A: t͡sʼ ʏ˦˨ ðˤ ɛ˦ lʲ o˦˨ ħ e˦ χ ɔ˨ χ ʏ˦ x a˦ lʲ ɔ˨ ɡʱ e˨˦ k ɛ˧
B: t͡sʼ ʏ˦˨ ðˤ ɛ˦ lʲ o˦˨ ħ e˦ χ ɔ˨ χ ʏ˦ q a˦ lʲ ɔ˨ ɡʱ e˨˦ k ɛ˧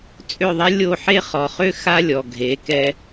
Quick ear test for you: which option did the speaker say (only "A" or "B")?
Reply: A